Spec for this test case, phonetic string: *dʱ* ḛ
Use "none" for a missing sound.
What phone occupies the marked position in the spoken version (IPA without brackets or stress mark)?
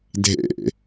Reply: dʱ